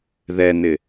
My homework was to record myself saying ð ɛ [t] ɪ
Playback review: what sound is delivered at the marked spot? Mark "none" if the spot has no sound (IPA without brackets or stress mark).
n